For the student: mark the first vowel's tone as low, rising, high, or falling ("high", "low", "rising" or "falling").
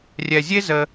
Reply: low